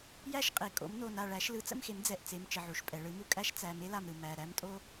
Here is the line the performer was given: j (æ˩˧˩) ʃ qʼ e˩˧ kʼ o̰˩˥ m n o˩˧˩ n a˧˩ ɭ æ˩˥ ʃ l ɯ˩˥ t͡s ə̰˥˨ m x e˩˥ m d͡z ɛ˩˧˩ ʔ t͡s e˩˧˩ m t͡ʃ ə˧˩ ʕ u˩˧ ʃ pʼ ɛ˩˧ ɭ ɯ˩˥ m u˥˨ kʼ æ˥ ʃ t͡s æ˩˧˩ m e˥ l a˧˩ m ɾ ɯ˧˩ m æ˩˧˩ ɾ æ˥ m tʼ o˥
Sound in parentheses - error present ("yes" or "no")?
yes